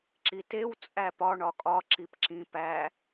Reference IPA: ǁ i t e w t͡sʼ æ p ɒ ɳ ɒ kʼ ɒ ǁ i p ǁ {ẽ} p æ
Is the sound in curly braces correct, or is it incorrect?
incorrect